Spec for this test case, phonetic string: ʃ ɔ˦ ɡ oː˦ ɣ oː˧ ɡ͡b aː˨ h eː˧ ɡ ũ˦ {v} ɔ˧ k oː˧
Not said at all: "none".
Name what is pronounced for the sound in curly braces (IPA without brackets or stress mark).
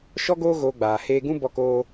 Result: b